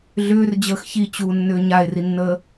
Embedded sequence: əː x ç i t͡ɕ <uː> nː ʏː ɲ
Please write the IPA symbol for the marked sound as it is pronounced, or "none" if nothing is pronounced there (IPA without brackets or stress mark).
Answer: uː